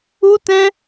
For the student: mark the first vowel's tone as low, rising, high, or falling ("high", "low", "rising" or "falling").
high